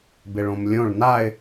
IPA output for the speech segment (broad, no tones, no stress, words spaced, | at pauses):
bɪɭõmlʲõɭ naɪ̯